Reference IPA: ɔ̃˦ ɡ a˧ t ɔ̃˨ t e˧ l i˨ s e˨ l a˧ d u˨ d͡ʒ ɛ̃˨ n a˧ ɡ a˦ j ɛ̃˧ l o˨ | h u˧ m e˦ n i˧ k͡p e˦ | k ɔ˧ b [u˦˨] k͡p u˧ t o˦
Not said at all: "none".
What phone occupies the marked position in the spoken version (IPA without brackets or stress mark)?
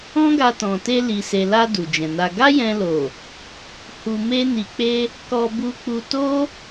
u˧